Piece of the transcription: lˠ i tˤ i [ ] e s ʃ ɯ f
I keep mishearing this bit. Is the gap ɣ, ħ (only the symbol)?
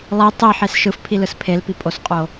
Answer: ħ